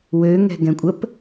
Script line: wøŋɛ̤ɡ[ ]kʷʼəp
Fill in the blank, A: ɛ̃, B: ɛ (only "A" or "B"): A